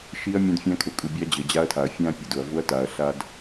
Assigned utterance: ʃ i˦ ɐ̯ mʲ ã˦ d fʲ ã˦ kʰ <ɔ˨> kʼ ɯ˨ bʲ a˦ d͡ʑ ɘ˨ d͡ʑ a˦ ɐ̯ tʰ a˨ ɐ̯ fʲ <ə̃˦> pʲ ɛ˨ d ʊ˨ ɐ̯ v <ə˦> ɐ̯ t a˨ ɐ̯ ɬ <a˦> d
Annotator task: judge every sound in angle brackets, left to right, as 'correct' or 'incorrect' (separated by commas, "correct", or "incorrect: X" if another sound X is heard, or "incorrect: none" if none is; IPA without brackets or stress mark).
incorrect: ʊ˨, incorrect: ã˦, incorrect: ʊ˦, correct